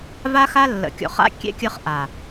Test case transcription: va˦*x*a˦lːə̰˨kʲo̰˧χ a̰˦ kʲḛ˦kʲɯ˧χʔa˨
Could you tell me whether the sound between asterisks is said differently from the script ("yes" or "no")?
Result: no